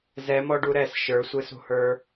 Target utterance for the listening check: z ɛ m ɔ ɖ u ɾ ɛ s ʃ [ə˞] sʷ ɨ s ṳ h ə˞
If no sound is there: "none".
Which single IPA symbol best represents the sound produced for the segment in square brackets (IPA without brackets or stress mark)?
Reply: ə˞